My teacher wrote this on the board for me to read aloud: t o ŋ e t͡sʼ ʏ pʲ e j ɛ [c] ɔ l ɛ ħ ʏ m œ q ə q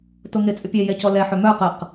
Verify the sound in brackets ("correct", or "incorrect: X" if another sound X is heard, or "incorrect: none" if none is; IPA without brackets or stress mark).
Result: correct